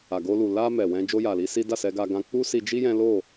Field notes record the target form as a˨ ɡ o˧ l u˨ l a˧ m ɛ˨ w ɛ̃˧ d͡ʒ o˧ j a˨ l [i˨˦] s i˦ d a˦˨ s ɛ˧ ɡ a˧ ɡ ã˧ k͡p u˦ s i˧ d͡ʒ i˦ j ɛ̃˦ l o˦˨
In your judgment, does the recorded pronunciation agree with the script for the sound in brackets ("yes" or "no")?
yes